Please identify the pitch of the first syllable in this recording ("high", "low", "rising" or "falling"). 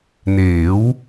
rising